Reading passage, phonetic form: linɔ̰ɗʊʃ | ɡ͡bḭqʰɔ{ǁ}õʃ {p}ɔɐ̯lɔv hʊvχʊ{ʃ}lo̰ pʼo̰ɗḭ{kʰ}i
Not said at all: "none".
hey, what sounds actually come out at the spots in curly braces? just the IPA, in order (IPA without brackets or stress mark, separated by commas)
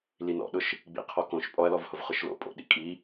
k, pʼ, ʃ, kʼ